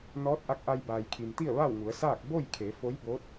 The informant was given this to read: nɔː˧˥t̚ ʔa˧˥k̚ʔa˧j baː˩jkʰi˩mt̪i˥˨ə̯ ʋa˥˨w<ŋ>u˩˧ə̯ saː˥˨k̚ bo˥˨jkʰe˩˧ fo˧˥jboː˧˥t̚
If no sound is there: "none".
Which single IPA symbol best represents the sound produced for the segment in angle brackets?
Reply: ŋ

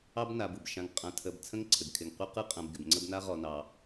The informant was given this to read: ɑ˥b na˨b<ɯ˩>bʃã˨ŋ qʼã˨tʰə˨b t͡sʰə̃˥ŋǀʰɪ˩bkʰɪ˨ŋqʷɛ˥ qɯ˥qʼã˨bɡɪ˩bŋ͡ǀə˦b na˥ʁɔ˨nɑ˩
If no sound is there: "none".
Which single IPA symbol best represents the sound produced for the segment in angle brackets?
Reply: ɯ˩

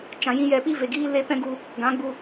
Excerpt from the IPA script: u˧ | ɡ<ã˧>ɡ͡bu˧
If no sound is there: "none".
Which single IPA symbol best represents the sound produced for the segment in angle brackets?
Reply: ã˨˦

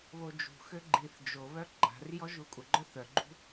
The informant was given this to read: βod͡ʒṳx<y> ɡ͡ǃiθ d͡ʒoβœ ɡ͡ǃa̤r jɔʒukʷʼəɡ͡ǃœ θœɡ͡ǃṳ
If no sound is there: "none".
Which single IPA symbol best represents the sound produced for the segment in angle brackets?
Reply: ø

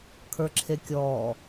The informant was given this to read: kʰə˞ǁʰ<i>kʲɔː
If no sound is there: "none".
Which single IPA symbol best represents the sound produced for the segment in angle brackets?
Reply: e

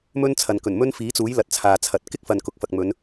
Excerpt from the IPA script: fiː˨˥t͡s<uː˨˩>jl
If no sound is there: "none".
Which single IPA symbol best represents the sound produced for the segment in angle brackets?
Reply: uː˨˥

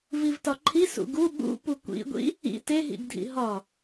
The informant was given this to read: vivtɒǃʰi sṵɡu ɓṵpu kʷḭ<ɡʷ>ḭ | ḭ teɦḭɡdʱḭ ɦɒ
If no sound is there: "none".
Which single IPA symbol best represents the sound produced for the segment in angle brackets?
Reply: ɡʷ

